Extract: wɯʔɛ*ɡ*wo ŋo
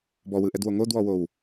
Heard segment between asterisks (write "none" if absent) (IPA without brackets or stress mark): d